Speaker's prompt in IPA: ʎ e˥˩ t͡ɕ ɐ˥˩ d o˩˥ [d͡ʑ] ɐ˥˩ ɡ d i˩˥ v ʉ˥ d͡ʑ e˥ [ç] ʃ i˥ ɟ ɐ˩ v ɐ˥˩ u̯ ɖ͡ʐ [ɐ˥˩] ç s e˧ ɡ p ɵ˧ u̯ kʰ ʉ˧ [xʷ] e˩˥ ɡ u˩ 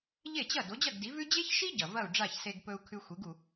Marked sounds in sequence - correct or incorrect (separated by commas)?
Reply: correct, correct, incorrect, correct